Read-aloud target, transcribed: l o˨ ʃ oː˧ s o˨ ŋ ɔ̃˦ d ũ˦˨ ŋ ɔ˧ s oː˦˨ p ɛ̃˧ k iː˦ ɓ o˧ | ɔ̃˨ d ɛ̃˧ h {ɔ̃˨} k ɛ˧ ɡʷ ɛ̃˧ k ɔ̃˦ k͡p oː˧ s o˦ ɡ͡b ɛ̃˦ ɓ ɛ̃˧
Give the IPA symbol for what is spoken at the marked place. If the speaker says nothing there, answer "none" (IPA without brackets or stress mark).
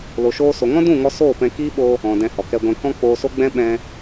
ɔ˨